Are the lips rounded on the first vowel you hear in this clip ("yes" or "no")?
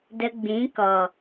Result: no